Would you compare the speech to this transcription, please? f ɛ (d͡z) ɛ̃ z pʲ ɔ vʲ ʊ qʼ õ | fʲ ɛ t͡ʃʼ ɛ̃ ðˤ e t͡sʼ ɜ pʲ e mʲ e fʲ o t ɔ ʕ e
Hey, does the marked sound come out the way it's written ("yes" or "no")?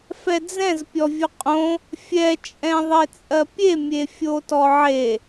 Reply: yes